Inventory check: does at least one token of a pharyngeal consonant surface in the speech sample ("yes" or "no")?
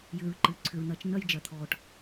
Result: no